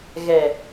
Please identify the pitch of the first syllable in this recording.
low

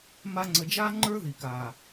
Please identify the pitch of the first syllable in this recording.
high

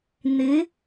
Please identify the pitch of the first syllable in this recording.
rising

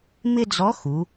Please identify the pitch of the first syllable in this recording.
high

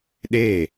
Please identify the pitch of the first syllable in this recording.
falling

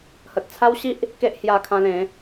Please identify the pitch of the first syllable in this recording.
low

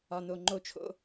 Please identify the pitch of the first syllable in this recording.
high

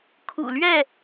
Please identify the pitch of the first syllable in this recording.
low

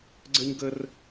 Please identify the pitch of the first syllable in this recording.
high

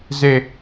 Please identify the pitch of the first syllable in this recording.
falling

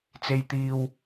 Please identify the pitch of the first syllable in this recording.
low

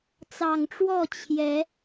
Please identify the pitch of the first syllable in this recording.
low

